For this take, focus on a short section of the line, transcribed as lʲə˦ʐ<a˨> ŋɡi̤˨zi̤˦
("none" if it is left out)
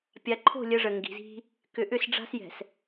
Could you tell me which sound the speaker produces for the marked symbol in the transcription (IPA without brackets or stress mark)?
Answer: ə˨